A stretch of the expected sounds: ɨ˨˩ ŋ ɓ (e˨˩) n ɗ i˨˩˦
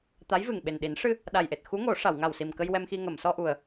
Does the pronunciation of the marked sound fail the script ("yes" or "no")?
no